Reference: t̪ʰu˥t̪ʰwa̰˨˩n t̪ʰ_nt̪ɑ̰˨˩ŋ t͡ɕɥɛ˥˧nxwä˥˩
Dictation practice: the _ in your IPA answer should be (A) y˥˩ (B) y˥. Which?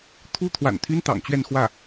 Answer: B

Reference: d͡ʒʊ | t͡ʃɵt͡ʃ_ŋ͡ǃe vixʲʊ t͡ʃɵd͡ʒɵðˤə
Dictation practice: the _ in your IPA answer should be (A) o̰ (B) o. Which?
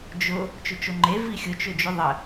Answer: B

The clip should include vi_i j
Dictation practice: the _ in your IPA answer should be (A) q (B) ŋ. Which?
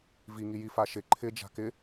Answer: B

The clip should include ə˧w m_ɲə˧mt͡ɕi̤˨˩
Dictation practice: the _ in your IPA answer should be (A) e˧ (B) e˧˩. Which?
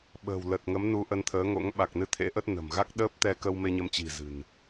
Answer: A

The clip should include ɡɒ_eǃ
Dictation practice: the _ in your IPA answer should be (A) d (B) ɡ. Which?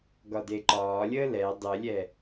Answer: A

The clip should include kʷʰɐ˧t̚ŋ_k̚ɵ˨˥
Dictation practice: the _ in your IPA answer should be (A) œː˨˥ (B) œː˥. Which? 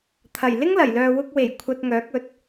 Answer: A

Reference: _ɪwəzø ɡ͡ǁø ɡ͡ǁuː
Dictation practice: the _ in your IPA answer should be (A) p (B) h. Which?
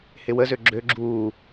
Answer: B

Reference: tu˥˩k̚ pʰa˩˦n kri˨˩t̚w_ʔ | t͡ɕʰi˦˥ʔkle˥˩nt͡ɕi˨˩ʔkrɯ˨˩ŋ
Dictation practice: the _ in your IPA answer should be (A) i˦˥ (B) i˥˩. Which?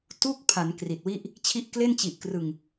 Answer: B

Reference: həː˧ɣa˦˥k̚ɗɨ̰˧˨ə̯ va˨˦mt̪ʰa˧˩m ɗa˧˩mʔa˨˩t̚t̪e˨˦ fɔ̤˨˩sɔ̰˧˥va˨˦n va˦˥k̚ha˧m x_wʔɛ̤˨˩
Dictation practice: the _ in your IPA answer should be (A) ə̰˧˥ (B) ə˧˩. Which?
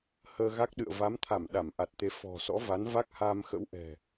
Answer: A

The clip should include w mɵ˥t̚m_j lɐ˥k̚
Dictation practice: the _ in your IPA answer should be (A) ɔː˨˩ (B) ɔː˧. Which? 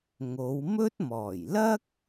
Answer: A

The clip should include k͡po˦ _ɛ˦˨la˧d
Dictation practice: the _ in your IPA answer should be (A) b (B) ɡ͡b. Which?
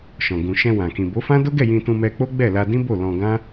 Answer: B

